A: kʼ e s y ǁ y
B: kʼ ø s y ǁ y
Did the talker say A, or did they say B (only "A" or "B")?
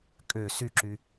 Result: B